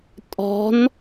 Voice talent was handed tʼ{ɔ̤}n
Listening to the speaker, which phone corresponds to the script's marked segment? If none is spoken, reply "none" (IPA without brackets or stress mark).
ɔ̤